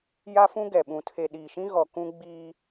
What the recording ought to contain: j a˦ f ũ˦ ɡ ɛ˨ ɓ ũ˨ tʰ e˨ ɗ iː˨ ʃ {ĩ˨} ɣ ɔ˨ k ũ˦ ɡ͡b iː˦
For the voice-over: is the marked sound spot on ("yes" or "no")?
no